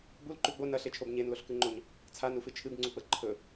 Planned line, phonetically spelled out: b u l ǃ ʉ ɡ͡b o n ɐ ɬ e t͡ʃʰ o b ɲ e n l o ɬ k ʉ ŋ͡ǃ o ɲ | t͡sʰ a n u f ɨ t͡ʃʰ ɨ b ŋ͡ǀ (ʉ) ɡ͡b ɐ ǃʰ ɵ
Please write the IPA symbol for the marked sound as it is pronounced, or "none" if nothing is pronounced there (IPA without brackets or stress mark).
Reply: u